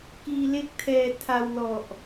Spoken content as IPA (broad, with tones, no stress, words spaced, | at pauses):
kiː˧le˥˩k̚tʰɛː˧ tʰa˧wlɔ˨˩ʔ